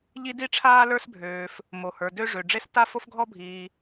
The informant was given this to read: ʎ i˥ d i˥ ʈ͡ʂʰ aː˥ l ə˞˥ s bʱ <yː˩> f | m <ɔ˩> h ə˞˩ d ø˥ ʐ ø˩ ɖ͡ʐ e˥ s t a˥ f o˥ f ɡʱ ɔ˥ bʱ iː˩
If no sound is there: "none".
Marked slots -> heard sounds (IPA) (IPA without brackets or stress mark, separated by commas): øː˩, o˩